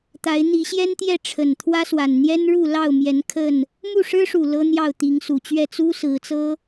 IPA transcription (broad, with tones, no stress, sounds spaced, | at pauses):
t̪ a˨˦ ɪ̯ n̪ i˨˦ ɕ j ɛ˦ n t̪ j ɛ˥˨ ʈ͡ʂʰ ə˨˩ n t̪ʰ w ä˦ s w a˨˩ n n̪ j ɛ˦ n ɻ u˥˨ l ɑ˥˨ ʊ̯ m j ɛ˨˦ n kʰ ə˥˨ n | m u˥˨ ʂ ɻ̩˦ ʂ u˨˩ l ɤ˦ n̪ j ɑ˥˨ ʊ̯ t̪ i˨˦ ŋ s u˨˩ t͡ɕ ɥ ɛ˥˨ t͡s u˦ s ɹ̩˨˦ t͡s ɤ˦